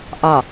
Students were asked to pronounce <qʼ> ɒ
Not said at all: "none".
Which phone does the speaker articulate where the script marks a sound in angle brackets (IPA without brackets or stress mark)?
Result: ʔ